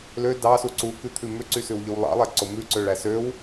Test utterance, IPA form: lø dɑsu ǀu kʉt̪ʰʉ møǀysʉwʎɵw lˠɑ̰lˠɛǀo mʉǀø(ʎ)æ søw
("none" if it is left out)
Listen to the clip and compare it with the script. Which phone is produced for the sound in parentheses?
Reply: ɭ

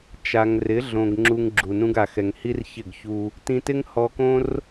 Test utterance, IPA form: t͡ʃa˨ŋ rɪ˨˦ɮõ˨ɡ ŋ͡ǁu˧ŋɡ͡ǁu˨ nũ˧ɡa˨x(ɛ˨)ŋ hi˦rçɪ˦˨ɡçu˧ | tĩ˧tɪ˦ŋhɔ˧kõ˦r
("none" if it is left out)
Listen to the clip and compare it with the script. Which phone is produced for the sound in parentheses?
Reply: ɛ˨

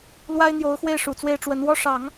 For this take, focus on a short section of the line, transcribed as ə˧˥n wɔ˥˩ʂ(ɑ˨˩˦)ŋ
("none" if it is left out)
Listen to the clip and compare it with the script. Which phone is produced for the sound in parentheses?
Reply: ɑ˨˩˦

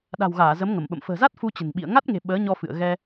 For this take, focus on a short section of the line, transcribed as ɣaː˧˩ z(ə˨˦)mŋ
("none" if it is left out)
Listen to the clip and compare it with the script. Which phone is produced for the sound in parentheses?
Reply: ə˨˦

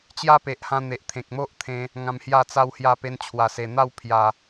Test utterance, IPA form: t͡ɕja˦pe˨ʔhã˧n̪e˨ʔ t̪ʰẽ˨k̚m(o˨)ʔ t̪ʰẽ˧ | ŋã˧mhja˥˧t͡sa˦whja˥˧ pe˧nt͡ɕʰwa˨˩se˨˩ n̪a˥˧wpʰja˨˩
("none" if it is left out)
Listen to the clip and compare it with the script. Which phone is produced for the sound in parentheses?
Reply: o˦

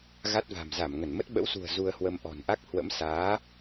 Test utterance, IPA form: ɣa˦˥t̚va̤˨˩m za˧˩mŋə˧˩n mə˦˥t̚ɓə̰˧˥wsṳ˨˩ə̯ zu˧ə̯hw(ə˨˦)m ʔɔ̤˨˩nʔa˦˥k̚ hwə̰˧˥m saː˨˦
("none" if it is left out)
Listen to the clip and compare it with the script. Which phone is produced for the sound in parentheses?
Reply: ə˧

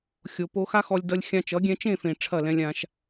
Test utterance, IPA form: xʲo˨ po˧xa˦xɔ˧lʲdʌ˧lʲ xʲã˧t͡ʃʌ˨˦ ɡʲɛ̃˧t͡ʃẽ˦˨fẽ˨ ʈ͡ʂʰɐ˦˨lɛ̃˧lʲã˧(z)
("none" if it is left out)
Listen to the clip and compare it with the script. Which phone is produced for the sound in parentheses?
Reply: ʃ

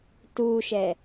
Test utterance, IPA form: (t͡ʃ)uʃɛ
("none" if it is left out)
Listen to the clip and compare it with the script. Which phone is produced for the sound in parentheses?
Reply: t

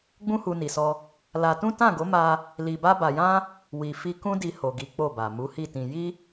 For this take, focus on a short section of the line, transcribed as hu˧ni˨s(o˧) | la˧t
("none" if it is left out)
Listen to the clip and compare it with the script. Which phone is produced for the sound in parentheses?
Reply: ɔ˧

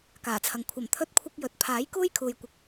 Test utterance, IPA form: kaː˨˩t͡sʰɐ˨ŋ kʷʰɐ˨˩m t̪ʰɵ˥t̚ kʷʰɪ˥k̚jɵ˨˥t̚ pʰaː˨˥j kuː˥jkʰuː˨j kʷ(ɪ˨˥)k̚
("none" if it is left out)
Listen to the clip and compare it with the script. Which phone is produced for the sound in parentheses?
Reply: ɪ˧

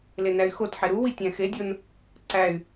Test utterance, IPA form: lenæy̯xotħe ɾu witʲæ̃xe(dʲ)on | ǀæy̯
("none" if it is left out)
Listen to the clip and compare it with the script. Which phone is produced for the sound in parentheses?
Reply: dʲ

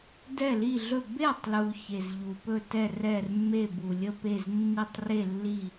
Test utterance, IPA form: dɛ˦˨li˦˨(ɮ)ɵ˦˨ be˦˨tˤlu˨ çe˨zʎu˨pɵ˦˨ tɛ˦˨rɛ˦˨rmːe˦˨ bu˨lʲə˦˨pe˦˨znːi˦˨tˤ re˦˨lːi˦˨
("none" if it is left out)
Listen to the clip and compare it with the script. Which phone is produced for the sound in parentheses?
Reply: ɮ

